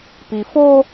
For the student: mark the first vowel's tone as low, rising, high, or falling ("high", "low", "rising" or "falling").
low